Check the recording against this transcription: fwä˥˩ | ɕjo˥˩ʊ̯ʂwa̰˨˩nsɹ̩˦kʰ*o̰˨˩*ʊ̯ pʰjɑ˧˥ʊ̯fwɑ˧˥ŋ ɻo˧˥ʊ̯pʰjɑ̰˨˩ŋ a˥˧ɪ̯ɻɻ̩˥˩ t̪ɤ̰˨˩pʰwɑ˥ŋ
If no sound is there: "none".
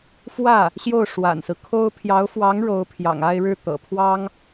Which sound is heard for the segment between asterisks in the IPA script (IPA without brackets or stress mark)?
o˥